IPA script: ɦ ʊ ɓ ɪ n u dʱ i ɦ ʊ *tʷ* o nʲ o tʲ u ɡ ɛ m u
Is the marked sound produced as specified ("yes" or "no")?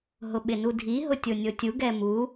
no